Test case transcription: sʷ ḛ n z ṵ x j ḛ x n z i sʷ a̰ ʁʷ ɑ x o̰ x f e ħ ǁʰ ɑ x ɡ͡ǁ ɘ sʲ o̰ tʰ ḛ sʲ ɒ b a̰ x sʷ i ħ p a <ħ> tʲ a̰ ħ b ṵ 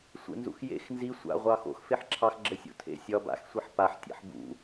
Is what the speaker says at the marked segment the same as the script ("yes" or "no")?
yes